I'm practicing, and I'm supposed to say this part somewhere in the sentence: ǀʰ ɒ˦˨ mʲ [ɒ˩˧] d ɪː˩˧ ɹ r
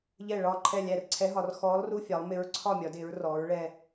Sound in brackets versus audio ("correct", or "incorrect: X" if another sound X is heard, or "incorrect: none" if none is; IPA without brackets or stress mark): correct